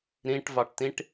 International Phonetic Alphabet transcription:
ɾ ĩ ʈ v ɑ ʈ t ĩ ʈ

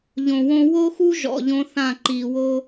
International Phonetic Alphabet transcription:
ʎ õ˨ w õ˦ w o˦ x u˦ ʒ ɔ̰˨ ʎ õ˦ θ ã˦˨ ǃ i˨ w o˦

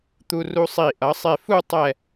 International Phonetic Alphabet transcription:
t̪ u˧ r u˧ sˤ i˧˩ ʔ ʌ˩˧ sˤ e˧˩ f u˥˧ tˤ ɛ˧˩

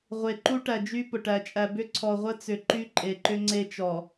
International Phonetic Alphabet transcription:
ʁʷ e˨ ǃ u˦ ʈ æ˨ d͡ʒ y˦ p ʊ˨ ʈ æ˦ t͡ʃʼ æ˦ b ʏ˦ ǀʰ ɔ˨ ʁʷ ə˦ t͡s ʏ˨ ǃ y˦ ǃʼ e˨ ǃ ʏ˦ ŋ͡ǀ e˦ t͡ʃ ɔ˨

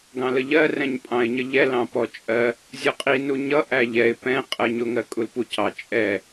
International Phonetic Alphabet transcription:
ɡ ɑ̃ l ə ʎ ɜ r ɛ̃ ɲ pʼ ɑ̃ ɪ̯ ɲ ə ʎ ɛ l ɑ̃ p ɔ t͡ʃʼ ɜ | zʲ ɔ qʼ i n u ɲ ʌ ʔ æ ʎ ɛ ɪ̯ p ɛ̃ qʼ ɜ ɲ ʊ ŋ ɜ kʼ u l p u c ɑ t͡ʃʼ ɛ

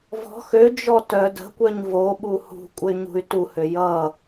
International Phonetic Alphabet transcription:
v ɔ̤ x ø d͡ʒ ɔ t œ d ə̤ kʷ œ ɲ v o ɓ u h ṳ kʷʼ ə y̯ ɲ ṳ y̯ t u h ø j ʌ

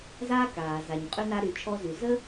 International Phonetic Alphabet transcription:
z aː˥ k aː˩ z a˩ ɲ qʼ y˧ n a˧ ɾ y˩ t͡ʃʰ ɔ˧ z y˩ z ə˥

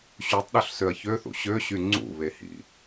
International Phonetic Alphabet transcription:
ɕ y tˤ ɗ ø ɬ s ø ɐ̯ ç ø θ ṵ ɕ ø ɕ y ŋ͡ǀ ṵ β e h ḭ

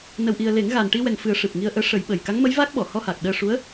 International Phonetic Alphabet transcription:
n ə˨˩ w ʔ i˨˩ ə̯ l e˨˩˦ ŋ ɣ a˨˩ n ʈ i˧ w ɛ˨˩ ŋ f ɨ˨˩˦ ə̯ ʂ ɨ˨˩ p̚ ŋ i˧ ə̯ ʔ əː˧˥ ʂ ə˨˩˦ j ɓ ə˨˩ j k a˧˥ ŋ m ə˧˥ j v a˦˥ k̚ ɓ ɔ˨˩˨ h ɔ˧ h aː˨˩ k̚ ɗ əː˧ ʂ u˧˥ ə̯

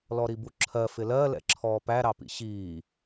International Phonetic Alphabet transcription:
l ɔ ɾ i b u ǁʰ ɜ f ɪ l ɜ l ɛ̰ ǁʰ ɔː p æ ɾ ɑ p ḭ ɕ iː

